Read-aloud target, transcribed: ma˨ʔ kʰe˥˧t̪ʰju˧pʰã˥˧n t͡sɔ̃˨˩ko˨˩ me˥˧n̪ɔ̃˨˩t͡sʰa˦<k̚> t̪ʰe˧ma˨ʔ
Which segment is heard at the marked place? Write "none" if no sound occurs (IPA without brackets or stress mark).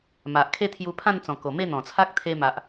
k̚